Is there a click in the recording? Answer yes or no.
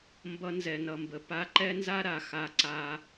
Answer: yes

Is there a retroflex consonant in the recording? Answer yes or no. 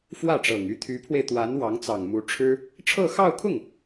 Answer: yes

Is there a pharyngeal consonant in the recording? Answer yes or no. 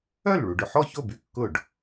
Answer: yes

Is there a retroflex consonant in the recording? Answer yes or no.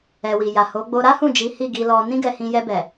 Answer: no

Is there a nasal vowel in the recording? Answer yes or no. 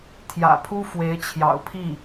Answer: no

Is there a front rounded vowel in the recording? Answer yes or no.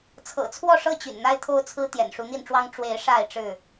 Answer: yes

